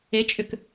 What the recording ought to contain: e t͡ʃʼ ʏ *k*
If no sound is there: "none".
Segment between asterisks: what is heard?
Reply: k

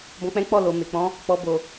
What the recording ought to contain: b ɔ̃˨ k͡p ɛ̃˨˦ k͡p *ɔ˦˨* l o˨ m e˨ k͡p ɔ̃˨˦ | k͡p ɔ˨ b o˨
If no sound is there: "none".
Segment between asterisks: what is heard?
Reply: ɔ˦˨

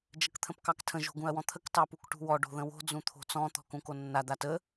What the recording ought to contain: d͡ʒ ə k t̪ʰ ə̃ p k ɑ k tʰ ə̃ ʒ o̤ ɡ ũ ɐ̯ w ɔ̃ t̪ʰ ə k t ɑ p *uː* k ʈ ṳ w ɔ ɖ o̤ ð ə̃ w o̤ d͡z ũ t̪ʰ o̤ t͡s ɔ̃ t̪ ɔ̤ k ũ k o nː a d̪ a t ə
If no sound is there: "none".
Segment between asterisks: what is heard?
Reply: u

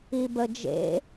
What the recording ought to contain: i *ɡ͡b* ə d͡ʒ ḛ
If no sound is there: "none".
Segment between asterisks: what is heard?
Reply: b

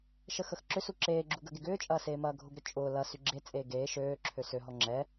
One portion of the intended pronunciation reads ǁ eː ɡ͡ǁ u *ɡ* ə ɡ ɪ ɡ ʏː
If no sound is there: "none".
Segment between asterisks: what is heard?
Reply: ɡ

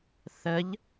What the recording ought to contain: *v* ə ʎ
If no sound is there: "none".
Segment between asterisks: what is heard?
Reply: θ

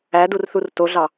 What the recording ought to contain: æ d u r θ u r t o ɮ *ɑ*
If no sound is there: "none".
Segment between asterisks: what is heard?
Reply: ɑ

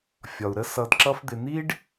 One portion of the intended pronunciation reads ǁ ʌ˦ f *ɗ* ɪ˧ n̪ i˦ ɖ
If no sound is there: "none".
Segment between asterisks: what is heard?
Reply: d̪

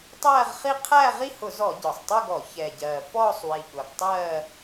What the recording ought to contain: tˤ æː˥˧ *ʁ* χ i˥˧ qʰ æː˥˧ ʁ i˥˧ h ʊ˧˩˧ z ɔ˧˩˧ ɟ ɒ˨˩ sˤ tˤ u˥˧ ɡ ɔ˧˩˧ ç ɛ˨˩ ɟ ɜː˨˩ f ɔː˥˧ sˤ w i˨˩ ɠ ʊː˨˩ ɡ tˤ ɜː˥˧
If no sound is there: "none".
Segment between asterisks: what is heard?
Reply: ʁ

